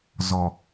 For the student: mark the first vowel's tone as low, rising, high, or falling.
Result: low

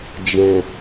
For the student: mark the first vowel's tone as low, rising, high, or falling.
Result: low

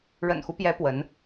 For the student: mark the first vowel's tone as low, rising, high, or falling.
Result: low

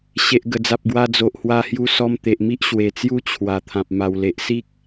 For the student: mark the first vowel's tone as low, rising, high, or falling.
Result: low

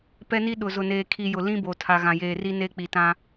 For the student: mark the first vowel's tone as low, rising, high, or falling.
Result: high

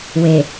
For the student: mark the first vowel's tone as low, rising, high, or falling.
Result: low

